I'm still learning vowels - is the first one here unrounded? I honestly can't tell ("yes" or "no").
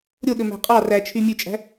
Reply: no